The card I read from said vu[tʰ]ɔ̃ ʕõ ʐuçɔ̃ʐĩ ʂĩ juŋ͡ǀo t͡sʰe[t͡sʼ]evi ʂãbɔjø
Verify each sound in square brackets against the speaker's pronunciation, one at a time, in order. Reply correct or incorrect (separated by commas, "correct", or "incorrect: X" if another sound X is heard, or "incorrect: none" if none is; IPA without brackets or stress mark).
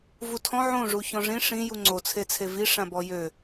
correct, incorrect: t͡sʰ